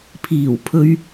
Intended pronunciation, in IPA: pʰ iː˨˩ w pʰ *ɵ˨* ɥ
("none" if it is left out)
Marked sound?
ɵ˨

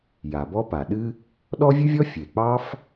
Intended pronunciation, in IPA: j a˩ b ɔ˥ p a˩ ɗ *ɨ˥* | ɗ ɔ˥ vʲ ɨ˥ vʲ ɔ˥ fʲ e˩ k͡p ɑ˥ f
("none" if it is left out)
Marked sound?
ɨ˥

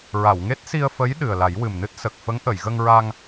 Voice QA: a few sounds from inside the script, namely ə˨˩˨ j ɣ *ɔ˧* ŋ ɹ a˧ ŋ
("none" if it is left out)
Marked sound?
ə˧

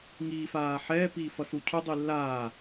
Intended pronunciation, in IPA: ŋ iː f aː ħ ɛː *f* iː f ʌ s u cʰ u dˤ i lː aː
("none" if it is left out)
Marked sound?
p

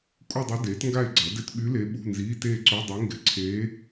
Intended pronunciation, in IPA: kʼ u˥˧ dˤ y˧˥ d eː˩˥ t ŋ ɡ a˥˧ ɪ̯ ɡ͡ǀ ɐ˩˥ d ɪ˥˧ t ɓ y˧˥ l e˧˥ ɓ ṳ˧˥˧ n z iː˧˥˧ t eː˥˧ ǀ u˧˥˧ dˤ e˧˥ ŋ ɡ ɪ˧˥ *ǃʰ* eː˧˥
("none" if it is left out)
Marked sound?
ǀʰ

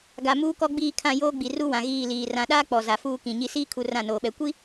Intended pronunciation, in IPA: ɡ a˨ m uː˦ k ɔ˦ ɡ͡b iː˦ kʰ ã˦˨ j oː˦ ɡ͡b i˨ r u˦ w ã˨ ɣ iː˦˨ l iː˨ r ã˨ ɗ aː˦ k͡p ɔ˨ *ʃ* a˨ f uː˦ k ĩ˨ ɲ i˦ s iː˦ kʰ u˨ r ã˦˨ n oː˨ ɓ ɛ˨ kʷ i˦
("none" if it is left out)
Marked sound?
z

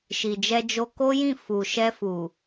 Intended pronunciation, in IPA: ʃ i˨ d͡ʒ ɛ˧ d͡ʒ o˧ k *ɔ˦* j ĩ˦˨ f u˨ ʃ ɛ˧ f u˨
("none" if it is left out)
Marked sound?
o˦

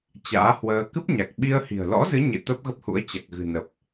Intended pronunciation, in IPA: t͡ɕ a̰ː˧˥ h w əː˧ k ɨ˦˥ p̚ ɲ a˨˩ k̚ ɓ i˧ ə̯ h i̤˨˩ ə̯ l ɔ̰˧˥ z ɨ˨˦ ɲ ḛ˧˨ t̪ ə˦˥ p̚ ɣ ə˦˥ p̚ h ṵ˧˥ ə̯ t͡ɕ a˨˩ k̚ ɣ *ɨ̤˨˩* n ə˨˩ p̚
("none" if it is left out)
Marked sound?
ɨ̤˨˩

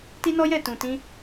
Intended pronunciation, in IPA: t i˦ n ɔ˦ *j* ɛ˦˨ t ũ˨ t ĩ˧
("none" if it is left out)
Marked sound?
j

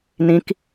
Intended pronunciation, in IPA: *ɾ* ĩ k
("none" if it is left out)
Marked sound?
n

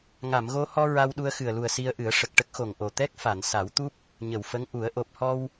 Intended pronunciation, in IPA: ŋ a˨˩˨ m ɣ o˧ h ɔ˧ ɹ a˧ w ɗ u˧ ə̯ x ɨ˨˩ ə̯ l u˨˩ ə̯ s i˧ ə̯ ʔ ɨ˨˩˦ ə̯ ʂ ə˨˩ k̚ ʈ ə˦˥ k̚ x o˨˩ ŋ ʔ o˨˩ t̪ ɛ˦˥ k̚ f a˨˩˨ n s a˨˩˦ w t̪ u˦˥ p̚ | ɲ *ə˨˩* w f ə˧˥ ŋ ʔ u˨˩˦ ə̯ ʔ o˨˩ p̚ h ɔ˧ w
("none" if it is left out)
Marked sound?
ə˨˩˨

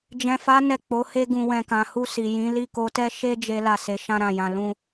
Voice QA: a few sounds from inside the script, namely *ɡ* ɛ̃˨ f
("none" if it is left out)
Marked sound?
d͡ʒ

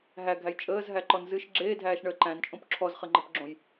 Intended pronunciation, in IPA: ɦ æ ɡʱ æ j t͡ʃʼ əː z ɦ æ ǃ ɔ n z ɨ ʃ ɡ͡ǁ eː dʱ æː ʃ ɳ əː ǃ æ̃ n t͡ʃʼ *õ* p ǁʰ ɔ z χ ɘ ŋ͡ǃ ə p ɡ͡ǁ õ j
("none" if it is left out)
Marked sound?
õ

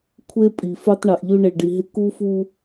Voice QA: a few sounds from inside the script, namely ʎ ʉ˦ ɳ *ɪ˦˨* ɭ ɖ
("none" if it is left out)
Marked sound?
ɪ˨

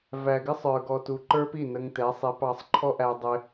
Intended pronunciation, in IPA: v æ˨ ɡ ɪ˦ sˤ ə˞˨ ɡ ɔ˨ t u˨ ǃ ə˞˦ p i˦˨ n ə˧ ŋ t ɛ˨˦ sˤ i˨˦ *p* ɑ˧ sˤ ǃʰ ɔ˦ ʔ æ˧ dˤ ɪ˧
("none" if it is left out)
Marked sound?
p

